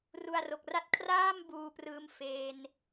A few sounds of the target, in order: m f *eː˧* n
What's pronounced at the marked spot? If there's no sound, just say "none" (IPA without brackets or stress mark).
eː˧